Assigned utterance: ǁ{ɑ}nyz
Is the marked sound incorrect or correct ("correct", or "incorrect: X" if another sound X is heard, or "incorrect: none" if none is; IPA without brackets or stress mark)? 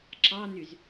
correct